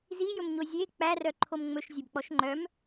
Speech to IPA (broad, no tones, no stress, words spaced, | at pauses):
zijɵmɲo zʲe k͡pærœǃʰom ŋ͡mɵʃzʲɛbk͡pɔʃ ŋ͡ǃœm